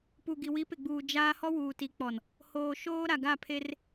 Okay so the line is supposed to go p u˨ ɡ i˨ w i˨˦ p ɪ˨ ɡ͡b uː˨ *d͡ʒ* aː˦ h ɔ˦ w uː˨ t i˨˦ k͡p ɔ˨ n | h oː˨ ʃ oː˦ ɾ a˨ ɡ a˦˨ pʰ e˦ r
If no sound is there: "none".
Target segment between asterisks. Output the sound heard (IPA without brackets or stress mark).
d͡ʒ